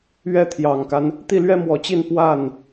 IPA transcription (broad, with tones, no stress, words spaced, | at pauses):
ɥɛ˥t̪ʰjɑ˨˩ŋka˦n | t̪i˥˩lɥɛ˥mwɔ˨˩t͡ɕi˥˧n pwa˥˩n